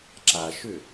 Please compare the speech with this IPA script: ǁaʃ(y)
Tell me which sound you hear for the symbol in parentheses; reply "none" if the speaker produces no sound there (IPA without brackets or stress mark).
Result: ʏ